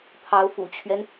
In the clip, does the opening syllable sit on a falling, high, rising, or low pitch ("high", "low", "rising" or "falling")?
rising